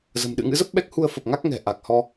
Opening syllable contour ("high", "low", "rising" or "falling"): low